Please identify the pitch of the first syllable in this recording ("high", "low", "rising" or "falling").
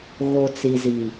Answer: low